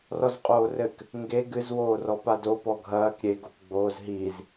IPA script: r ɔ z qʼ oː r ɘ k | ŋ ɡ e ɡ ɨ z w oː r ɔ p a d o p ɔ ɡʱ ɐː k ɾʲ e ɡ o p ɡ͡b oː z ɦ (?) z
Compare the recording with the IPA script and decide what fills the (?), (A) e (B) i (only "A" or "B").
B